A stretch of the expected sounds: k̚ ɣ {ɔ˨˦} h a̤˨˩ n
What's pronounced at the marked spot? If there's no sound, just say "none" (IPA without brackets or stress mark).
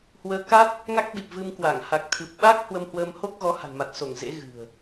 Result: ɔ˨˦